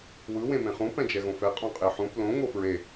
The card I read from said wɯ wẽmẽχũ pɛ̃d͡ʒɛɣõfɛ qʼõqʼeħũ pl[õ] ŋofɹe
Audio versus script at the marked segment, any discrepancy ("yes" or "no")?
no